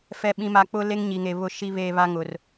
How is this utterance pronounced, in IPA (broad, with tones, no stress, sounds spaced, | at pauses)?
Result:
f ɛ˨ ɓ ĩ˨ m a˨ k͡p ʊ˦ l e˦ ŋ ɲ i˨ ŋ e˨ β ʊ˦˨ ʃ i˦ β eː˦ β a˦ ŋ ʊ˨ r